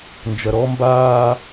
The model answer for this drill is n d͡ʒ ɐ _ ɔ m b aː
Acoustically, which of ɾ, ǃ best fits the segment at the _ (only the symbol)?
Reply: ɾ